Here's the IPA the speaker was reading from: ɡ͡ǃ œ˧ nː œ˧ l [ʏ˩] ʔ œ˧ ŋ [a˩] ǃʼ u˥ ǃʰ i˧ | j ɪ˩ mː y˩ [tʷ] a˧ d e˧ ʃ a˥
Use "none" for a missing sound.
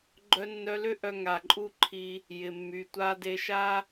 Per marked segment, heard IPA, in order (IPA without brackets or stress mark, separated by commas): ʏ˥, a˩, tʷ